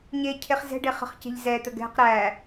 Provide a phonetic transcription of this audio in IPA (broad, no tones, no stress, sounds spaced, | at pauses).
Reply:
ɲ e cʰ e χ z ɛ̤ ɖ e χ ə̤ χ c e̤ ʎ z ɛ t̪ ə ɡ ɛ̤ q ɾ æ